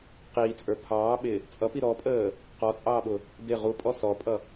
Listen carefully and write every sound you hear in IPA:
q iː t͡sʼ ə˞ pʰ ɑː ɓ ɪ | t͡sʼ ʌ p i ɾ ɔ pʼ əː | q ɔ t͡sʼ ɑː ɓ ʊ | d ɪ ʁ u pʼ ɔ s ɔ pʼ ʌ

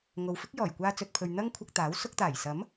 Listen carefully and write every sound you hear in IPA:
ŋ o˨ w f ɪ˥ k̚ j ɔː˨˩ j kʷ aː˧ t͡s ɵ˨ t̚ pʰ ɵ˨ ɥ n̪ ɐ˥ ŋ kʷʰ ɐ˧ k̚ t̪ aː˨˥ w s ʊ˧ k̚ t̪ aː˨˩ j s ɐ˨˥ m

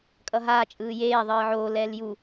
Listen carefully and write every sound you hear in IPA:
kʼ ʌ ɦ aː t͡ʃʼ ɯː j eː ðˤ ɯː ʕ oː l ɛː l j u

